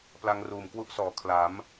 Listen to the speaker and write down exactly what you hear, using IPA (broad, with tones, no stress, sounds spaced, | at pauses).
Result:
p l a˧ ŋ r uː˨˩ m k w u˦˥ ʔ s ɔː˩˦ kʰ l a˩˦ m